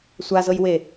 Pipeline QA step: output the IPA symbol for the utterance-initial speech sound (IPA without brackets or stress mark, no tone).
sʷ